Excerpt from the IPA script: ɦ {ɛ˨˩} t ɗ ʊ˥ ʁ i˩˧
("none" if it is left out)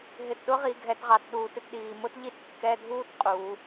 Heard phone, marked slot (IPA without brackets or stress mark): ɪ˨˩